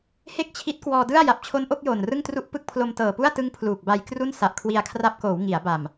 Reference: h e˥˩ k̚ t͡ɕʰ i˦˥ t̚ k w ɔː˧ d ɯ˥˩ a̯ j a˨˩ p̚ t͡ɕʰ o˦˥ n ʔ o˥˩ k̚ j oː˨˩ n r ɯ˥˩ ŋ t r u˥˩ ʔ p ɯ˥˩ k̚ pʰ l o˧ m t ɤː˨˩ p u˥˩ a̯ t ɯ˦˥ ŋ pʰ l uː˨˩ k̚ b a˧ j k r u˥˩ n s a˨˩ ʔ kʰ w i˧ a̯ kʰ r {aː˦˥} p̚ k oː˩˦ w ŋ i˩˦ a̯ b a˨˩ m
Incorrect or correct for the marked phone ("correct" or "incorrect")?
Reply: incorrect